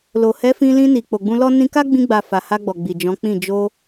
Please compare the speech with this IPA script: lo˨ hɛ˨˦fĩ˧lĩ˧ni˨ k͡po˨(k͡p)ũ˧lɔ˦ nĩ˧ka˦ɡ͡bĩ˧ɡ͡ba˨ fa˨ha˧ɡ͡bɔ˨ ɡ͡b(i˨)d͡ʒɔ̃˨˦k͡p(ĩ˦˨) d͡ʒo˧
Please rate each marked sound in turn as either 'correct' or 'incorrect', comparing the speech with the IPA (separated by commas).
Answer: incorrect, correct, correct